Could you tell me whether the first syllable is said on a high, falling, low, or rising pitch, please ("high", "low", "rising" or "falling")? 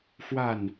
falling